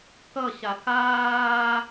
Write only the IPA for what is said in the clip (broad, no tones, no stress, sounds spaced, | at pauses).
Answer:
k ʌ ɕ a k aː